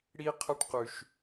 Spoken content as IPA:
ɽ i˥ qʰ ɐ˥ ʈ q ʉ˧ ʃ

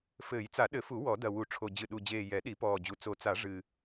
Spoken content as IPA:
f ɘː˨˩˦ j t͡s a˨˩˦ ɗ ɘ˨˩˦ f u˨˩˦ w ɔ˨˩˦ d ɐ˨˩ w u˨˩˦ ʈ͡ʂʰ o˨˩ d͡ʑ ɨ˨˩ ɗ u˨˩ d͡ʑ eː˨˩ j ɛ˨˩˦ ɗ i˨˩˦ p ɔː˨˩ d͡ʑ u˨˩ t͡s o˨˩˦ t͡s a˨˩˦ ʐ ɨ˨˩

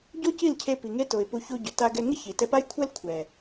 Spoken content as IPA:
ɟ o˦ c i˦˨ l cʰ e˧ p i˨ ŋ e˦ t o˨ ɪ̯ p u˧ ç u˧ ɟ ʊ˨ t a˧ ɡ ɛ˧ ŋ ɪ˦ ç i˨ t ɛ˧ p a˦ j kʷʰ ɛ˦ l kʷʰ ɛ˨

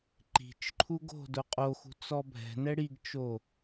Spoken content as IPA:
ǃ i̤ t͡ʃ ǃʰ u ɡ o̤ d ʊ qʼ o x ṳ t͡s ɔ bʱ ɛ̤ n ɛ ɽ i ɡ t͡ʃ o

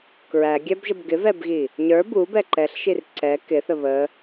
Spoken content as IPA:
k ɹ æ ɡʲ æ b ʒ ə b ɡ ɪ v ɛ b ɣ i | ɲ ə˞ b u b ɛ ǃ ɛ ɬ ʃ i r ǀ ɛ k ɪ θ ə β ə

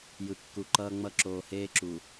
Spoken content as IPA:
j ɯ˨ kː u˨ ǃ ʌː˦ ŋ͡m ʌ˦ ǁ oː˨ h eː˦ ǁ u˨

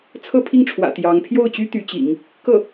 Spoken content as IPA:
t͡sʰ ɤ˥˧ pʰ i˥˩ ŋ ʈ͡ʂʰ w ä̰˨˩ t̪ j ɑ˧˥ ŋ pʰ j o˥˩ ʊ̯ t͡ɕ y˥ t̪ y˧˥ t͡ɕ ḭ˨˩˦ ŋ | k ɤ˥˩

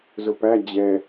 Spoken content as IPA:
z ʊ p æ d͡ʑ ɛ

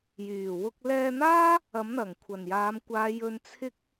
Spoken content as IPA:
j yː˨˩ w ʊ˧ k̚ l ɛː˧ n̪ aː˥ | ɐ˨˥ m n̪ ɐ˨˩ ŋ kʷʰ ɐ˨˩ n j aː˨˧ m kʷ aː˨˧ j ɵ˧ n t͡sʰ ɪ˥ k̚

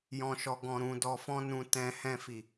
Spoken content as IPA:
j ɔ̃˨ ʃ ɔ˨ ɡ ɔ̃˨ ɾ ũ˨ d ɔ˨ f ɔ̃˧ n ũ˨ t ɛ̃˨ h ɛ̃˧ f i˨

